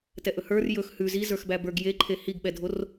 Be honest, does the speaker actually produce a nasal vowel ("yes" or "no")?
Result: no